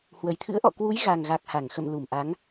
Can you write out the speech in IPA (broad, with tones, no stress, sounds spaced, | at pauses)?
h w ə˨˩ j t̪ʰ ɨ̰˧˥ ə̯ ʔ ɔ̰˧˨ k w u˨˦ j ɣ a˨˩ ŋ ɣ a˨˩ k̚ h a˧˩ ŋ x ə̰˧˨ m l u˧˩ m ʔ a˨˦ ŋ